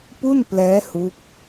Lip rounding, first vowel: rounded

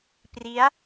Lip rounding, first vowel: unrounded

